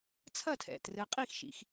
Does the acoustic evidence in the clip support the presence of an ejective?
yes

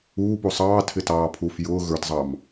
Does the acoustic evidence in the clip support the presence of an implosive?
no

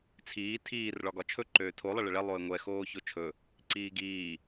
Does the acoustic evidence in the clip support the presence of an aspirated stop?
yes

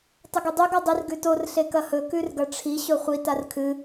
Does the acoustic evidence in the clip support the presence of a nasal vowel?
no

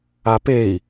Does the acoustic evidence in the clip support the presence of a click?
no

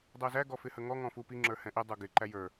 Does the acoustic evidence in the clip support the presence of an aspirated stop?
no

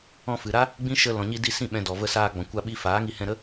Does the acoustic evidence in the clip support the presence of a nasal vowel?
yes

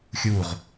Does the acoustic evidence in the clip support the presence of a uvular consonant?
yes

